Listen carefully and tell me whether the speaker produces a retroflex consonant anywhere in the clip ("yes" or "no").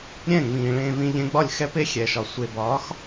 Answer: yes